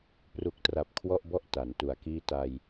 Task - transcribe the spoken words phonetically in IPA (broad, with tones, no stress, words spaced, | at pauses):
pru˨˩k̚tra˨˩p̚ kʰwɔ˥˩ʔbɔ˥˩ʔ ta˩˦ntu˨˩a̯kiː˥˩ ta˧j